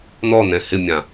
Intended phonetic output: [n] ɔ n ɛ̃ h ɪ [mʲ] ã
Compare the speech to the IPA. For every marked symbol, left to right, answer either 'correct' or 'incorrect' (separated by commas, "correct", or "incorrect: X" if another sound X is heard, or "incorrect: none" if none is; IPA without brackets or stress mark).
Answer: correct, correct